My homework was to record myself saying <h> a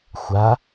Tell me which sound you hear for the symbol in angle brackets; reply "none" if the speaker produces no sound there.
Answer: xʷ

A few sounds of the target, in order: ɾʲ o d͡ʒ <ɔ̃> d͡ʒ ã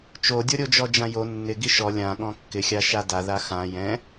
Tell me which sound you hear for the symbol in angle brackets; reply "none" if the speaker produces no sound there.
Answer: ɔ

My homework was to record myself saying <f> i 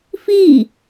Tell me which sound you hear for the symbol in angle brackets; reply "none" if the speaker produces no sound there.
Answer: f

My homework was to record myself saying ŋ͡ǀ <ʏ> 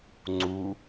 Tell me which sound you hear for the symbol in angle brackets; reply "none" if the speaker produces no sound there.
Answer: u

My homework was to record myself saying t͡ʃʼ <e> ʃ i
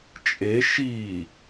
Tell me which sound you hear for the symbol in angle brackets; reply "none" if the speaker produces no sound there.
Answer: e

